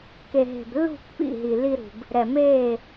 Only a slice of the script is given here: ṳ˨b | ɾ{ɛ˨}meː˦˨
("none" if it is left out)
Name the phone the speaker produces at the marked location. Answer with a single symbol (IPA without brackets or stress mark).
ɛ˨